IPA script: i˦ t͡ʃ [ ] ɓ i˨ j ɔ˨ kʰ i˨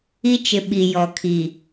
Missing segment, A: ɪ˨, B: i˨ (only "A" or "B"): A